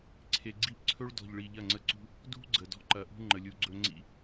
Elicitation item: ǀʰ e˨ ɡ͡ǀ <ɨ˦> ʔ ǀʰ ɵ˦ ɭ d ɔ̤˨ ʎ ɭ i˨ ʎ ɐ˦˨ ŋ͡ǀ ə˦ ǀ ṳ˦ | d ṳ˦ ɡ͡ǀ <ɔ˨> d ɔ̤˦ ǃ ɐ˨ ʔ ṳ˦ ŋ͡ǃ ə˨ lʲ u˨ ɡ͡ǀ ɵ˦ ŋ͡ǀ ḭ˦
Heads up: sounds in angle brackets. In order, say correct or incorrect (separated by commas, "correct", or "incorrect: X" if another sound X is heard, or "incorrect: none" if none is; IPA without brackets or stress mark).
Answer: incorrect: i˦, incorrect: ə˨